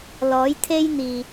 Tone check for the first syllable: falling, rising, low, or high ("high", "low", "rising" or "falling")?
rising